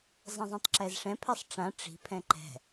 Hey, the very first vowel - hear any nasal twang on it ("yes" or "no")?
yes